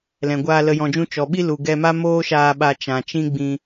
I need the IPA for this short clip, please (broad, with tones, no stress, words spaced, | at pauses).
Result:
lɛ̃˨ɡʷaː˧ lə˨jɔ̃˨d͡ʒũ˧ t͡ʃɔ˨ɓi˦ lu˨ ɡɛ˧ma˦ moː˦ʃaː˧ɓa˧ t͡ʃã˨t͡ʃĩ˦ɡ͡bĩ˧